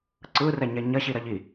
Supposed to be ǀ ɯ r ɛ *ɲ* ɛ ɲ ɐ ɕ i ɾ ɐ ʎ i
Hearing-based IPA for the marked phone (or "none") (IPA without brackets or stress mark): ɲ